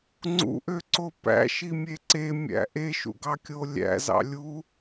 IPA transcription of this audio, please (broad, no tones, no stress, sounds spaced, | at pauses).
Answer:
ŋ͡ǀ ṵ ʔ ø ǀ o p æ̰ ʃ i mʲ e ǀ e mʲ æ̰ ʔ e ʃ ṵ ɡ ɑ kʲ o lʲ æ̰ z ɑ̰ lʲ u